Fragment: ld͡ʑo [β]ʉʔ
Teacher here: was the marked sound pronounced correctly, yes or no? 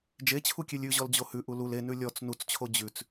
no